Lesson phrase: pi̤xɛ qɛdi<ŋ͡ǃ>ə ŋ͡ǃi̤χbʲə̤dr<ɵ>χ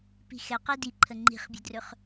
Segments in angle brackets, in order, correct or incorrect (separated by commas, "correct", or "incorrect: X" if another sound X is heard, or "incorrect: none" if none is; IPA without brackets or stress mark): incorrect: ǃʰ, correct